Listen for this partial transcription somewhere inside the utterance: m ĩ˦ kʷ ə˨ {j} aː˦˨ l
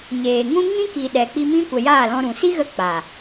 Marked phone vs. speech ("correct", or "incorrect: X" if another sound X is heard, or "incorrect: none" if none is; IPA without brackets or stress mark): correct